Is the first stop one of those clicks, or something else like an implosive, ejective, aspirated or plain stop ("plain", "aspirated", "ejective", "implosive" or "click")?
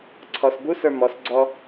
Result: click